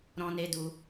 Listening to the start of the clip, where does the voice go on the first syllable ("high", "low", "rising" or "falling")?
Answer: high